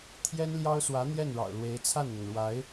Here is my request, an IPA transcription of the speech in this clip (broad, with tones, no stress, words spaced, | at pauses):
t̪ʰjɛ˥nljɑ˥ʊ̯swä˧˥ n̪jɛ˥˩nɻɑ̰˨˩ʊ̯lwe˧˥ɪ̯ t͡sʰa˥˩nn̪ʊ˩ŋɻwa˧˥ɪ̯